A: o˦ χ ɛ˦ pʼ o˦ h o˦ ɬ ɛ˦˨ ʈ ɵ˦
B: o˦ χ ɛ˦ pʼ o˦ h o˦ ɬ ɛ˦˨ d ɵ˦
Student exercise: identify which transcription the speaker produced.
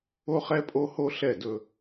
B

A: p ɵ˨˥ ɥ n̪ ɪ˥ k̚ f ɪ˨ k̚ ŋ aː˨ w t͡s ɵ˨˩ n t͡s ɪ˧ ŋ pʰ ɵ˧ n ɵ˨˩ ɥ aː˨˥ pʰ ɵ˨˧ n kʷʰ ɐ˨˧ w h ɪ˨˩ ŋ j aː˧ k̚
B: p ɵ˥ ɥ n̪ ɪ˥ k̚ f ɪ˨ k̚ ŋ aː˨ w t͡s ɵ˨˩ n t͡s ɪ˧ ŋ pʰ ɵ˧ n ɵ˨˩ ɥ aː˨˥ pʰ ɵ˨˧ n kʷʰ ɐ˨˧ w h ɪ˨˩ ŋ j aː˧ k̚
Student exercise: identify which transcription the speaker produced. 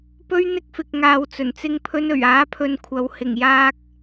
B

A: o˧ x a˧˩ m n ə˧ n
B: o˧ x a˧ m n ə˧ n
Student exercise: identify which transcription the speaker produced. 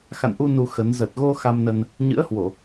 B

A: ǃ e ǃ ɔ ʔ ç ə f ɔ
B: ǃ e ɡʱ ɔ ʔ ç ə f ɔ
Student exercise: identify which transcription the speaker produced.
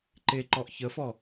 A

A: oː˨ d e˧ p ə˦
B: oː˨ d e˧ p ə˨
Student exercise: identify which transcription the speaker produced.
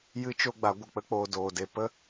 A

